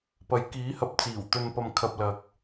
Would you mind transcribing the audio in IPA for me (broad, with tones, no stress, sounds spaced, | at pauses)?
p ɐ˨˥ j k iː˨˥ h ɐ˨˥ p̚ t͡s iː˨˩ w t̪ ɵ˧ n p ɐ˧ m kʰ ɐ˧ p̚ l ɐ˨ k̚